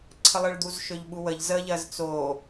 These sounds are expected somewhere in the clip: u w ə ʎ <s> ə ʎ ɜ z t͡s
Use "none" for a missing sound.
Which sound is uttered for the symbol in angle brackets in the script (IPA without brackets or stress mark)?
z